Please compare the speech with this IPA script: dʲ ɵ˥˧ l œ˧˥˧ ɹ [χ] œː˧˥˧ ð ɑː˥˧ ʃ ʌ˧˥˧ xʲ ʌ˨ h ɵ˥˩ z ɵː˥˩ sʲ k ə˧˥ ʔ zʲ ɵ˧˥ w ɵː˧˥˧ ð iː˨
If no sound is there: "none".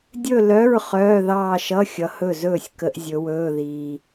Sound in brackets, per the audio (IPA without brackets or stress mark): χ